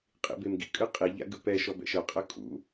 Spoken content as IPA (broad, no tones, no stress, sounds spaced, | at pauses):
qʼ ḭ b e m ɡ ḭ kʼ ɯ qʼ i ʎ a̰ ɡ ɯ p ɛ ʃ ɔ b ɛ̰ ʃ ɤ qʼ ɤ kʼ ṵ